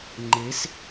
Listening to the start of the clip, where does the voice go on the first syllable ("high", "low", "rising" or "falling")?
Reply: rising